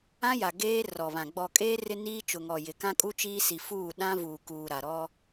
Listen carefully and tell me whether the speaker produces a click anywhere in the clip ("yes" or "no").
no